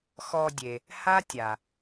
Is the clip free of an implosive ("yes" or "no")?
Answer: yes